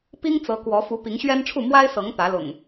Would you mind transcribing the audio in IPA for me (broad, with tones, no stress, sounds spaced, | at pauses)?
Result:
p i˦ ŋ t͡s ɤ˨˦ k w ɔ˨˦ f u˨˦ p i˨˦ ŋ ɕ ɥ ɛ˦ n ʈ͡ʂʰ u˥˨ m w a˦ ɪ̯ s ɤ˨˦ ŋ t̪ ä˨˦ l ʊ̰˨˩ ŋ